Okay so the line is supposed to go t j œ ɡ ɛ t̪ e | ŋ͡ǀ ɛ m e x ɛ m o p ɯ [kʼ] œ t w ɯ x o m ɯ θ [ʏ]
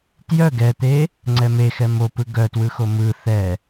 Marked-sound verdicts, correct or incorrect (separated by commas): incorrect, incorrect